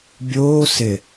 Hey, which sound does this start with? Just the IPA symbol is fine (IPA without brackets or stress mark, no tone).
bʲ